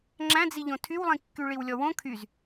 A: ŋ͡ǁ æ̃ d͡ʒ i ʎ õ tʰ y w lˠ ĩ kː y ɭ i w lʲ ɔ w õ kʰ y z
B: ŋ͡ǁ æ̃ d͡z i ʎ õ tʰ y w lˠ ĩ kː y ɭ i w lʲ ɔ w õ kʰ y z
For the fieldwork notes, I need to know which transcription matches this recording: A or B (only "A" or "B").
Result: B